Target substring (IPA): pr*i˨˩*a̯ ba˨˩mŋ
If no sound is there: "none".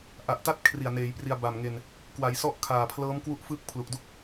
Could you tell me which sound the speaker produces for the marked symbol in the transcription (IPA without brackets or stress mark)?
i˧